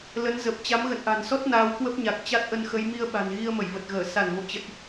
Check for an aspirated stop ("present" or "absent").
absent